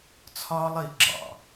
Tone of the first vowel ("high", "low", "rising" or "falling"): high